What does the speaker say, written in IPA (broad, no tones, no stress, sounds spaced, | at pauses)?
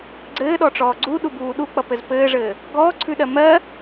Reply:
ɡ͡ǀ ɘː ɗ ɔ ʈ͡ʂ ɔː ɡ͡ǀ u ɗ u b uː ɗ u k͡p ʌ p ɘ z p ɘː ʐ ɘː | ɡ ɔː ǀʰ ʉ ɗ ɜ m ɜ